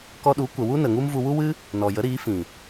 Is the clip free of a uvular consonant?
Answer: yes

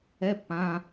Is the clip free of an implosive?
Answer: yes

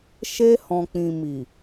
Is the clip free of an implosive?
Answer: yes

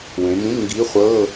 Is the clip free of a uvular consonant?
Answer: no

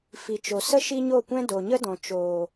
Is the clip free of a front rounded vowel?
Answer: yes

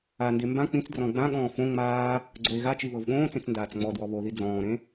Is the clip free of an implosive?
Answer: no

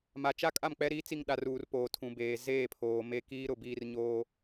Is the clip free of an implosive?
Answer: no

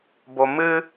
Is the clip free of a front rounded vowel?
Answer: yes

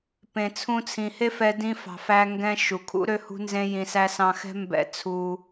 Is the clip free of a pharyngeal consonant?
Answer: yes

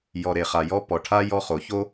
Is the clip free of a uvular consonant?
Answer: no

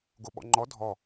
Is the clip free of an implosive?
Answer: no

